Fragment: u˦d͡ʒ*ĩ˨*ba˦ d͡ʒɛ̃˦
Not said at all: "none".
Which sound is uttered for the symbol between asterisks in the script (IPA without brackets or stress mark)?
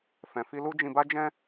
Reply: ĩ˧